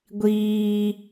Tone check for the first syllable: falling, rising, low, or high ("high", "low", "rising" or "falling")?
high